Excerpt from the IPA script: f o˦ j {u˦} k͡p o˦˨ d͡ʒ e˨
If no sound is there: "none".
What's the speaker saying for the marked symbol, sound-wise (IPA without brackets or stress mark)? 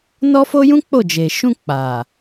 ũ˦